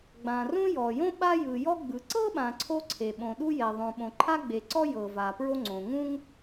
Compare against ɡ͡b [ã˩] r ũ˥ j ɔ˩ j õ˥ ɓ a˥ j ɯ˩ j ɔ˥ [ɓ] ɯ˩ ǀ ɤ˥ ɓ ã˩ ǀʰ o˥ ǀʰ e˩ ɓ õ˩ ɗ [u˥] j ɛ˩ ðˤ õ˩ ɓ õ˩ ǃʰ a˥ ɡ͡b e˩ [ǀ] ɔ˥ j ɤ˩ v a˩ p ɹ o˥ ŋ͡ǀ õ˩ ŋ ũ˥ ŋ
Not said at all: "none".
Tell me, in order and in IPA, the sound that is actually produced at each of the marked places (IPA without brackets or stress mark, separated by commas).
ã˩, ɡ͡b, u˥, ǀ